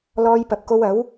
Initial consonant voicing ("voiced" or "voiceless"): voiced